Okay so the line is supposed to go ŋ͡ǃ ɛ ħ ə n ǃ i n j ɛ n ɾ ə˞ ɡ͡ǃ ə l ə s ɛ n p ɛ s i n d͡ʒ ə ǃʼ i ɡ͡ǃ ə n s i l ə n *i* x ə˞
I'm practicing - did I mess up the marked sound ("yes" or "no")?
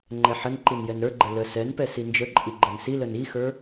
no